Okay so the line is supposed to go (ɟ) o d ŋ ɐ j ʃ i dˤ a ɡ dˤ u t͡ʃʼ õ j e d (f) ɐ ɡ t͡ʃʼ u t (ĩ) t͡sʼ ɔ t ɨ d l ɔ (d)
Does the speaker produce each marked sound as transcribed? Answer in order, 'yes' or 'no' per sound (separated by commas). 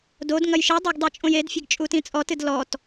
no, no, yes, no